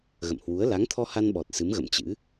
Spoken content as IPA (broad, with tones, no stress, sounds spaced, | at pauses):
ɣ ə̰˧˨ m h w u˨˦ ə̯ l a˨˦ ŋ t̪ʰ ɔ˧ h a˧ n ɓ ɔ˨˩ t̚ s ɨ˨˦ m ɣ ə̰˧˨ m t͡ɕ ɨ̰˧˥